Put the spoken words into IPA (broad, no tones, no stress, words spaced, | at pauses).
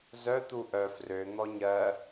zœ t̪uʔœ frø n̪ɔɲɜ